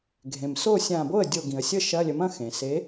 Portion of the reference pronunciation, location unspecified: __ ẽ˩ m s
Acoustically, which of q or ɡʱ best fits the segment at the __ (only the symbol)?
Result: ɡʱ